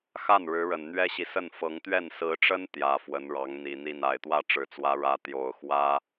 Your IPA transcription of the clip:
x a˥˩ n ɻ ɻ̩˧˥ ɻ ə˨˩ n n̪ ɥ ɛ˥ ɕ i˨ s ə˥˩ n f ɤ˧˥ ŋ t̪ ɥ ɛ˥˩ n s ɹ̩˧˥ ʈ͡ʂ ə˥ n t̪ j ä˨˩ f w ə˧˥ n ɻ ɑ˧˥ ŋ n̪ i˨˩ n̪ i˥˩ n a˨˩ ɪ̯ t̪ w ä˥˩ ʈ͡ʂ ɻ̩˨˩ t͡s w ä˧˥ ɻ ä˧˥ t̪ j o˨˩ ʊ̯ x w ä˥

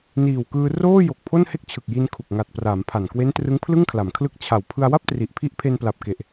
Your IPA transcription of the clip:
n iː˨˩ w k ɯː˧ r oː˥˩ j o˨˩ k̚ pʰ o˥˩ n h e˥˩ k̚ t͡ɕʰ ɯ˨˩ k̚ j i˧ n kʰ u˨˩ k̚ ŋ a˨˩ t̚ p r aː˩˦ m pʰ a˨˩ n k w e˦˥ n t r ɯ˦˥ ŋ pʰ l ɯ˥˩ ŋ kʰ l a˩˦ m kʰ l ɯ˦˥ k̚ t͡ɕʰ a˨˩ w pʰ ɯ˧ a̯ w a˥˩ p̚ t r i˨˩ ʔ pʰ i˦˥ ʔ pʰ e˧ n p l a˨˩ p̚ k e˨˩ ʔ

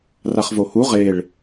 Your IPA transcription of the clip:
r a χ v o h u ʁ e ɭ

